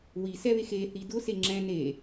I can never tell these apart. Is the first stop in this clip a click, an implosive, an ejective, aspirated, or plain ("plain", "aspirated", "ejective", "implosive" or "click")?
plain